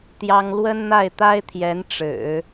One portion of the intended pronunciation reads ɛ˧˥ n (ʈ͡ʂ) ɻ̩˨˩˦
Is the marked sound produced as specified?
yes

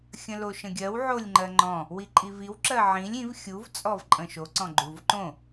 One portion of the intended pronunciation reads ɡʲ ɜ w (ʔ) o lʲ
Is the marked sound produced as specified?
no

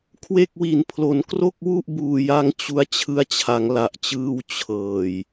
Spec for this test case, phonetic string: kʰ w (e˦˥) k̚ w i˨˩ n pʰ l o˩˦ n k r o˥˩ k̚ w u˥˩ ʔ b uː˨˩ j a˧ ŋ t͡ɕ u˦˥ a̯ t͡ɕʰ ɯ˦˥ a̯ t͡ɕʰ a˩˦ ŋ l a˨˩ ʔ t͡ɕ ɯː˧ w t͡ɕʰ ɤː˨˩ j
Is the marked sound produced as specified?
no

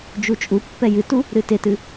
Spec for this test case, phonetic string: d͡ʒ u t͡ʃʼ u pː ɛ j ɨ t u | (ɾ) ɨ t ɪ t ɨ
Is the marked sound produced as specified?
yes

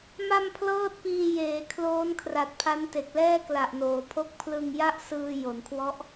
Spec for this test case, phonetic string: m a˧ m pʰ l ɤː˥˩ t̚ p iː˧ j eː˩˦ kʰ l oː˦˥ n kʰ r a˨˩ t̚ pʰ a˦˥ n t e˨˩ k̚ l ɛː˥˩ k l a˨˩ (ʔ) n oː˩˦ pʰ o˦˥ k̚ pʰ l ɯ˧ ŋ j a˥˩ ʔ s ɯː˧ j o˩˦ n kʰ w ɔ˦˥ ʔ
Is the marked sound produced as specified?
yes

